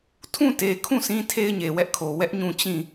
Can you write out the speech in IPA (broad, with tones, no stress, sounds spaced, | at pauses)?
tʰ ũ˦˨ t e˨ kʰ ũ˦˨ sʰ ĩ˦ tʰ e˦ ɪ̯ ɲ e˨ w ɛ˦ ʔ kʰ o˨ w ɛ˦ ʔ ɲ ũ˦˨ t͡ɕ ĩ˦˨